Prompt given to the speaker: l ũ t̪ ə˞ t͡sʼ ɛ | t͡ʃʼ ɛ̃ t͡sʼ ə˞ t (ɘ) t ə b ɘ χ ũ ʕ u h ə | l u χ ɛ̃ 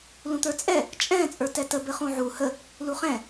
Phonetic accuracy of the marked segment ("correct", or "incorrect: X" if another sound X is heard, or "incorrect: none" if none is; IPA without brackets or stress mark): incorrect: ɛ